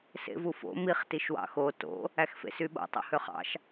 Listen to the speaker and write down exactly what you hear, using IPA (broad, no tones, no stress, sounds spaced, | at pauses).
s ḛ v u f o̰ m i χ t i ʃ w ɑ̰ x o t o̰ | æ x f ḛ s y ɓ o̰ tˤ o̰ h ø χ ɑ̰ ʃ